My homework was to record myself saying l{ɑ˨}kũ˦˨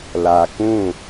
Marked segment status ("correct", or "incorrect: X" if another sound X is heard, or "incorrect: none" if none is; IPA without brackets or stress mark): incorrect: a˨